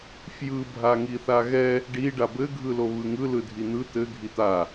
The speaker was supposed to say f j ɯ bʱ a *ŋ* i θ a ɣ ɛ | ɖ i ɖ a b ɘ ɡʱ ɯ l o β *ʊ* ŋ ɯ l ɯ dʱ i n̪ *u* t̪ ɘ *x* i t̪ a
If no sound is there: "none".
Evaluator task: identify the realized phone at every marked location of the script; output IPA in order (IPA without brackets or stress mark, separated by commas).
ŋ, ɯ, ɯ, ɡʱ